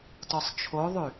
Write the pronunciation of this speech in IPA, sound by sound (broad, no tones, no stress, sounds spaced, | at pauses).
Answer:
t ɔ sˤ t͡ʃʰ o ðˤ y